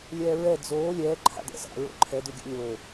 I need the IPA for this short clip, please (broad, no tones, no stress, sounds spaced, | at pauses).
lʲ ɛː ɹ ɛ d͡z oː lʲ ɛː ǃʰ a̰ d ɛ̰ s a̰ ɹ o̰ ǃʰ ɛ d ʉ ɡʲ a̰ lʲ oː